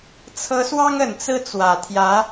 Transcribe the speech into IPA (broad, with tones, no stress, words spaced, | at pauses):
t͡sʰɤ˧˥swɑ˥ŋə˨˩n t͡sɹ̩˥˩t͡swä˨˩t̪ʰjä˧˥